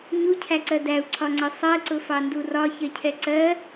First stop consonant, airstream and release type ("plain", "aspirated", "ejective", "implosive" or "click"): aspirated